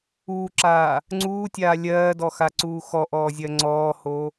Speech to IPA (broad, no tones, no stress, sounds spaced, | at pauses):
uː ǁ aː | ŋ͡ǀ uː tʲ aː lʲ ɜː d ɔ x a ǀ uː x ɔ ʔ ɔː zʲ ɜ ŋ͡ǀ ɔː h o